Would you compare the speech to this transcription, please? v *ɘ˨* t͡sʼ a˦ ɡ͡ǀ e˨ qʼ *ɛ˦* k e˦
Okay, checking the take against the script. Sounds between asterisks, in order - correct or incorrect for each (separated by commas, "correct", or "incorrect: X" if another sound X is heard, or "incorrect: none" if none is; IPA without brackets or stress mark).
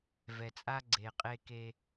incorrect: ɛ˨, incorrect: e˦